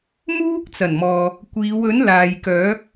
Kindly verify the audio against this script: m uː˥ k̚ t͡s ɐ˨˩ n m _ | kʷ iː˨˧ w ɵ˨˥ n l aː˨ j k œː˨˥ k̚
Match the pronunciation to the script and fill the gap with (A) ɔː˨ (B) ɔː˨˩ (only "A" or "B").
A